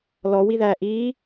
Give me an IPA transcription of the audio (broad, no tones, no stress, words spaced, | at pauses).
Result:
lɔwiðæː ʔiː